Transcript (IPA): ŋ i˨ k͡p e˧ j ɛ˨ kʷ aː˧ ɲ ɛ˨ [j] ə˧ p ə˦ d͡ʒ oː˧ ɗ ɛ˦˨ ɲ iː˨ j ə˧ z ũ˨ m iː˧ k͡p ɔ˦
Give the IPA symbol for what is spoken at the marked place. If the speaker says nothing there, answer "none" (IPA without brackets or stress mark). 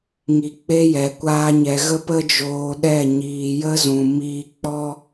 ɣ